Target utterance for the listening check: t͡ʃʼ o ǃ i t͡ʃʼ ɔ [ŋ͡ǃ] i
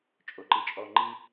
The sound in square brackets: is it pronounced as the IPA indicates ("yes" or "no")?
yes